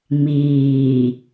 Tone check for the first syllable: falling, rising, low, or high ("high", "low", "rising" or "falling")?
low